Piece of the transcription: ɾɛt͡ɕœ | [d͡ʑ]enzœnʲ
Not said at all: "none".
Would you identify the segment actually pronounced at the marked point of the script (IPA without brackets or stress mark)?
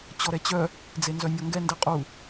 d͡z